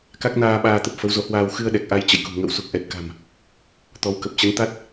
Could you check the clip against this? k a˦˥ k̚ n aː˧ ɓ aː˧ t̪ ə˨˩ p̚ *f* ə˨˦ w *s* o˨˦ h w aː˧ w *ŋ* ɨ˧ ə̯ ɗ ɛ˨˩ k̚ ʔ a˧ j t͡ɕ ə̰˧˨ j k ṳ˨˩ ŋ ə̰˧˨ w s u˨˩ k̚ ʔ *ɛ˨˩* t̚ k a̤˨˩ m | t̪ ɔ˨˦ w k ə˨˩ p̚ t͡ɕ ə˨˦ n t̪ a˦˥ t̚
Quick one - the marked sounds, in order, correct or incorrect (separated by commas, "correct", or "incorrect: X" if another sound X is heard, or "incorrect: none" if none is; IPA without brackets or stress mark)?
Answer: correct, incorrect: z, incorrect: x, correct